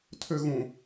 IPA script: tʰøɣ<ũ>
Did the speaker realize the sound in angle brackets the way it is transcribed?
yes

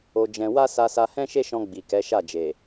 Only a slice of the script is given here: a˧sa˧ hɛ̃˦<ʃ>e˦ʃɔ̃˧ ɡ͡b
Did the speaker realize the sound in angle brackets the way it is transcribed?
yes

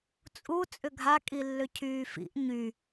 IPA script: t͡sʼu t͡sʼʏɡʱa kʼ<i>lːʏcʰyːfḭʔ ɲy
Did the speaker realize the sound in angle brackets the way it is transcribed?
yes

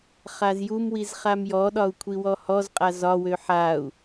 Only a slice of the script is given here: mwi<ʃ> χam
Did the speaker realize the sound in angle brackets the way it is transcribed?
no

